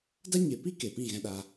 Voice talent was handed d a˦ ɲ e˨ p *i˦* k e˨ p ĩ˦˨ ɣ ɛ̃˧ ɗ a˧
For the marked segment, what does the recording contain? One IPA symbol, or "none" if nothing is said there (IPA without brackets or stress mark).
i˦